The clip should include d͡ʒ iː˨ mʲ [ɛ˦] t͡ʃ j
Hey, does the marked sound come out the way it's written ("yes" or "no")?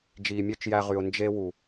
no